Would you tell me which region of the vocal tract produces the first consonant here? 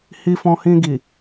throat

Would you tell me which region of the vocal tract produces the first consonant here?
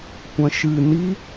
velum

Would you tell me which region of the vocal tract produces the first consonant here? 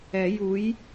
palate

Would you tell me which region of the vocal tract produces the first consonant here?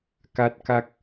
velum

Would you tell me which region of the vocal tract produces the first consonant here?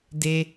tongue tip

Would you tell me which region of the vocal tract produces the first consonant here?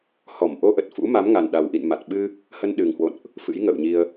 throat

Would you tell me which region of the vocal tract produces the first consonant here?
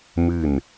lips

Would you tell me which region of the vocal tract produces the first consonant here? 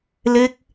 tongue tip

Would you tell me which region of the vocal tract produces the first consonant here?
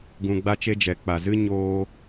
velum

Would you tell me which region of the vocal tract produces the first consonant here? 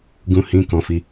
velum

